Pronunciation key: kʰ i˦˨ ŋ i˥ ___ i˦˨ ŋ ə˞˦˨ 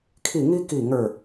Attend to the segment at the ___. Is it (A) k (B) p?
A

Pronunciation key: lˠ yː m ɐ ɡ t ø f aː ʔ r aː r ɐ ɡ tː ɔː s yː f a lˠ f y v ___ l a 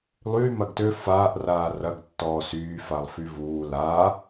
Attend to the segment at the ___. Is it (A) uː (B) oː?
A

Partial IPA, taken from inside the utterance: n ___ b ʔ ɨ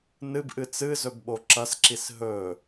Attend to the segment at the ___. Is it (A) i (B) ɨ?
B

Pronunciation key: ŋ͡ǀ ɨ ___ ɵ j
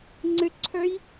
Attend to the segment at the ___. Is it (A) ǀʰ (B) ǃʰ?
A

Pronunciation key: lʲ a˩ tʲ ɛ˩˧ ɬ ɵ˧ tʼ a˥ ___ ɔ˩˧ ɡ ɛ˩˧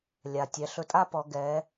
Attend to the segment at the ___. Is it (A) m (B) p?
B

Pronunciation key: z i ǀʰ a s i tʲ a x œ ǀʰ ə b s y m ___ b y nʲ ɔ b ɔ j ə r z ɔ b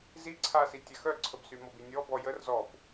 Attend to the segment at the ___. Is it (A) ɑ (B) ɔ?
B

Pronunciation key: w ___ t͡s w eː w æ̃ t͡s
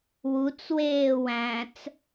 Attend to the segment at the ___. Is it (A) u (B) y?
A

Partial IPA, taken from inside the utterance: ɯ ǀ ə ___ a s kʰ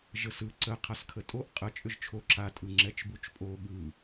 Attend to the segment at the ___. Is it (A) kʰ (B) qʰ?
B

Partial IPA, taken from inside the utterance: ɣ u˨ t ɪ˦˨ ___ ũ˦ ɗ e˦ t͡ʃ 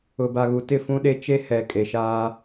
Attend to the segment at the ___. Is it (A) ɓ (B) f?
B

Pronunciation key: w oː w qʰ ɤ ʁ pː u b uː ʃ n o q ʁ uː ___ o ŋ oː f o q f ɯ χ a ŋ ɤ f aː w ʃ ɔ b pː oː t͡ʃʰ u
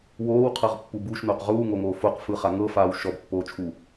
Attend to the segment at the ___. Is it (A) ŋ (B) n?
A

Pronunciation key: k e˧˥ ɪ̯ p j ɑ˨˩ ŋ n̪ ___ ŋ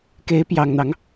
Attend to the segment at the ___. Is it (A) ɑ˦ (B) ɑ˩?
A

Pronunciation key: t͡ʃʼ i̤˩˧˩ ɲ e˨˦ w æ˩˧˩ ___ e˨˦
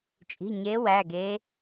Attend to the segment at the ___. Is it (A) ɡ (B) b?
A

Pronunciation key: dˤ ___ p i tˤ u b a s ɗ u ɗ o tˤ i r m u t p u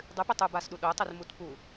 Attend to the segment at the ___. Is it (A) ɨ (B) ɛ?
A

